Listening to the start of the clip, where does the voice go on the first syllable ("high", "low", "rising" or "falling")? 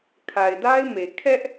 low